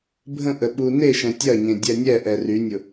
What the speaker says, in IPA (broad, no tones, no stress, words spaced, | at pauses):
bʱə̃ʔə ɓuneʃɛ̃ tʲɐɲẽ dʲɛnʲɛʔɛ rynʲʊ